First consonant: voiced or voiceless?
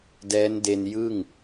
voiced